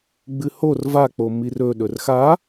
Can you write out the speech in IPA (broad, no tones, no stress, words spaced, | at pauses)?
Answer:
ɡ͡bɨhor vak͡pomir ɵɗɵr xa